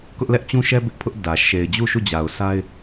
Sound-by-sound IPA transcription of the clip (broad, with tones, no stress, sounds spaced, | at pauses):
k ʊ˦ ʔ l ɛ˦ ʔ t͡ɕ ũ˦ ʃ ɛ˦ b ɪ˦ ʔ pʰ ʊ˦ ʔ d ä˨ ʃ e˨ ɪ̯ d͡ʑ u˦˨ ʃ u˦˨ d͡ʑ a˨ ʊ̯ s a˦ ɪ̯